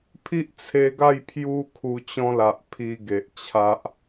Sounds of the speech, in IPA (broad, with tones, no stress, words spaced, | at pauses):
pʰi˦ʔt͡sʰe˧ɡa˥˧j pʰju˧ kʰu˧t͡ɕɔ̃˦la˨ʔ pʰi˧ɡe˨ʔ t͡ɕʰa˦ʔ